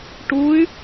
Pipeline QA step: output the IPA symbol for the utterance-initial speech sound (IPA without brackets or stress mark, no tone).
ʈ